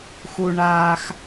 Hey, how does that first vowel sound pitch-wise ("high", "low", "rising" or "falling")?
high